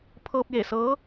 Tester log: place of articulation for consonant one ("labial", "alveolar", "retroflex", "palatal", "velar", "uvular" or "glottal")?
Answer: labial